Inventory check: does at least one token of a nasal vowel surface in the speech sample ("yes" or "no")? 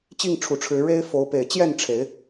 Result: no